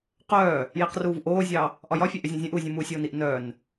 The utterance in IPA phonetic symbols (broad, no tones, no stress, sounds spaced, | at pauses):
q œː | j i q r uː v ʔ oː zʲ ɑ | ʔ ɒ j ɒ fʲ ɛ ʔ ʏ zʲ ũ zʲ œ̃ ʔ uː zʲ ũ m uː sʲ oː n i ʔ n œː n